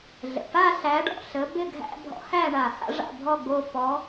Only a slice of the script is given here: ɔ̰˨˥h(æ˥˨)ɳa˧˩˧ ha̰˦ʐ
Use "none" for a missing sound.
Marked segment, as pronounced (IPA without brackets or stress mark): æ˥˨